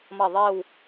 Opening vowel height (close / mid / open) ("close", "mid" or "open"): open